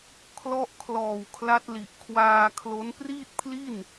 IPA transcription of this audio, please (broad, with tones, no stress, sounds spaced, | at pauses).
kʰ l ɔ˦˥ ʔ kʰ l ɔː˨˩ w kʰ l a˦˥ t̚ l i˨˩ ʔ kʰ w aː˧ kʰ l o˦˥ n p r iː˥˩ t̚ pʰ l i˥˩ n